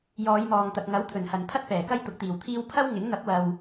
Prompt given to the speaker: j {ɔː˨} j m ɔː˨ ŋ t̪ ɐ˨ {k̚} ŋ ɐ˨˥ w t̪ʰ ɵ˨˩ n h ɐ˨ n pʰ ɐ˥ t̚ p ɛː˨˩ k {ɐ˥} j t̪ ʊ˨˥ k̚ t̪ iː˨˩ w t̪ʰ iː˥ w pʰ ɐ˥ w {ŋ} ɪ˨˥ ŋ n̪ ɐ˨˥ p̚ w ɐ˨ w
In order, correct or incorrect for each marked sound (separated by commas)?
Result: incorrect, correct, correct, correct